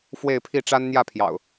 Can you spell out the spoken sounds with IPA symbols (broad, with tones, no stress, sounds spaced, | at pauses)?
f w e˥˨ ɪ̯ pʰ i˥˨ ʈ͡ʂ a˦ n n̪ j ä˥˨ pʰ j ɑ̰˨˩ ʊ̯